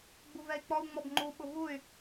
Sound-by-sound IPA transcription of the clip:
ɡ͡b u v ɛ i̯ k͡p ɔ u̯ ŋ͡m ɔ b ŋ͡ǃ u ɓ ʊ v u y̯

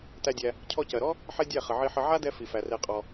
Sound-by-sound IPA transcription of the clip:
t æ˧ dʲ æ˧ | cʰ ɔ˧ c ɜ˨ ɾ ɔ˦ | ħ ɛ˦ dʲ æ˦˨ χ ə˨ ʕ i˧ ħ ə˧ ʕ a˦ d ɛ˧ f i˨ f æ˨ r e˧ qʼ ɔ˧

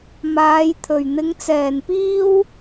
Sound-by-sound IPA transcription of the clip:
m aː˨˧ j t̪ʰ ɵ˨˩ ɥ n̪ ɪ˨˧ ŋ t͡s ɛː˨˩ n p iː˥ w

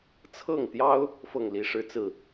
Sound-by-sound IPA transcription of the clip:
t͡sʰ ɤ˥˩ ŋ t̪ j ɑ˥ ʊ̯ | f ɤ˥˩ ŋ l i˥ ʂ ɻ̩˥ t͡s ɹ̩˥˩

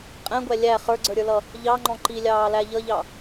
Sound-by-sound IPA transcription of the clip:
qʼ ɛ̃ ɡʷ æ lʲ æ χ ə˞ ɡ͡ǀ ə˞ ɾʲ ə˞ l ʌ | ʎ ɑ ŋ͡ǃ ɔ̃ ǃ i lʲ ɑː l æ ʎ ʌ ʎ ɑ

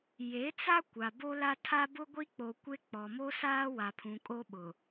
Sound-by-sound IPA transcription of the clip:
j e˨˦ t͡s a˦ kʷ a˨ b o˦ l a˦ tʰ a˦ b ʊ˦ ɡʷ i˦ k͡p o˨ kʷ e˦ k͡p ɔ˨ m o˦ s aː˦ w a˨ pʰ ũ˨ kʼ o˦ ɓ ʊ˨

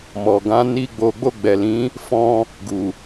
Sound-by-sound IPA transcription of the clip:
m ɔ˨ ɡ ã˨˦ n i˦ ɡ͡b o˧ ɡ͡b o˧ ɡ͡b ɛ˨ l ĩ˨˦ | f ɔ̃˧ | ɡ u˨

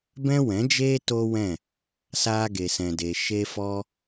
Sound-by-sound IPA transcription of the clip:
b ɛ̃˦ w ɛ̃˨˦ d͡ʒ eː˦ t o˦ w ɛ̃˦˨ | s aː˧ ɡ e˨ s ɛ̃˨ d eː˨ ʃ e˦ f ɔ˦

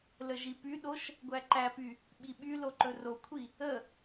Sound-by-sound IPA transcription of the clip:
l ə ʒ i p y ɗ o ʃ | ɡʷ æ ǃ æ p y | ɓ i ɓ y l o ǃ ɵ r o kʷʰ i | ə

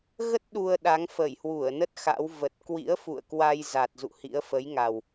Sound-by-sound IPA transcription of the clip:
ɣ ə˦˥ t̚ ɗ u˧ ə̯ ɗ a˨˦ ŋ f ə˧˩ j h w u˧˩ ə̯ n ə˦˥ t̚ x a̰˧˥ w v ə˨˩ t̚ k w ḭ˧˥ ə̯ f ṵ˧˨ ə̯ k w a˧ j z a˨˩ t̚ z ṵ˧˨ h ḭ˧˥ ə̯ f ə˨˦ j ŋ a˨˩ w

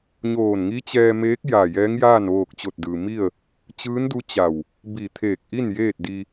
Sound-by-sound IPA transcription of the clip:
ɲ oː˧˩ n ŋ i˧˥ t͡ɕ ɛː˧ m eː˧˥ k̚ j a˧˩ j ɛː˧˥ ŋ j aː˥˨ n ʋ oː˧˩ k̚ t͡ɕ o˧˩ t̚ d ɯː˩ m i˥˨ ə̯ | t͡ɕ ɯː˧˥ n d u˧˥ t͡ɕ a˧˩ w | b i˧˩ t̪ʰ eː˧˩ k̚ ʔ i˥˨ n j eː˥˨ t̚ d i˧

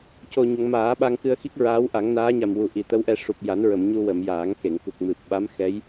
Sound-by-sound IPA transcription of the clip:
c o˨˩ ɲ ə˨˩˨ ŋ m aː˨˩˦ ɓ a˧ ŋ k ɨ˧ ə̯ x i˦˥ k̚ ɹ aː˧˥ w ʔ a˨˩˦ ŋ n aː˧˥ ɲ a˨˩ m w u˨˩ ʔ i˨˩ t̪ ə˧˥ w ʔ ɛ˧ ʂ u˨˩ p̚ j a˨˩˦ n ɹ ə˨˩˨ m ɲ u˧ w ə˨˩˨ m j aː˨˩˦ ŋ k e˨˩˨ ŋ k u˨˩ k̚ m ɨ˨˩ p̚ ɓ a˧˥ m x ɛ˧˥ j

